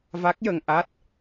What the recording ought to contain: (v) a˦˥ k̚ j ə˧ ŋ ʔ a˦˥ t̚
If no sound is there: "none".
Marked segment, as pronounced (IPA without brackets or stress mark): v